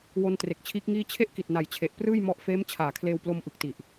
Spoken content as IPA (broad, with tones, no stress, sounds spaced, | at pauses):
w o˧ n t r e˨˩ k̚ t͡ɕʰ iː˦˥ k̚ ŋ iː˥˩ t͡ɕʰ e˥˩ ʔ k i˨˩ t̚ n a˨˩ j t͡ɕʰ e˨˩ ʔ p r ɯː˥˩ j m ɔ˦˥ ʔ f eː˦˥ m t͡ɕʰ aː˨˩ kʰ l eː˧ w p l o˧ m ʔ ɯ˨˩ k̚ t i˨˩ ʔ